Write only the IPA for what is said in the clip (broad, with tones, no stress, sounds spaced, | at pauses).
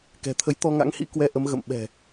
k ɛ̤˨˩ t̪ʰ ə˨˦ j t̪ ɔ˧ ŋ a̰˧˥ ŋ h ḭ˧˥ k w ɛ˧ ʔ ə˨˦ m ɣ ə̰˧˨ m ɓ ɛ̤˨˩